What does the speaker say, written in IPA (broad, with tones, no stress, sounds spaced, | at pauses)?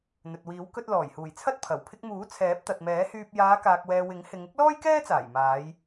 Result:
n̪ ɵ˨ t̚ w iː˨˥ w k ɵ˧ t̚ l ɔː˨˩ j h uː˨˩ j t͡sʰ ɐ˥ t̚ pʰ ɐ˨˩ w pʰ ɪ˧ k̚ m uː˨˥ t͡sʰ ɛː˨˥ p̚ t̪ ɐ˨ t̚ m ɛː˨˥ h yː˧ p̚ j aː˨˧ k aː˨ k̚ w ɛː˨ w ɪ˨˥ ŋ h ɪ˨˧ ŋ ɪ˥ k̚ l ɔː˥ j k ɛː˥ t͡s aː˨˩ j m aː˨˧ j